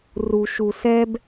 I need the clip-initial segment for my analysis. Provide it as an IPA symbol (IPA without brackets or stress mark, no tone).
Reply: r